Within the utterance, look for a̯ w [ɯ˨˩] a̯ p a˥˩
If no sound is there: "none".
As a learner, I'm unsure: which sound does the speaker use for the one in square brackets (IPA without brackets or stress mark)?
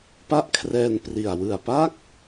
ɯ˨˩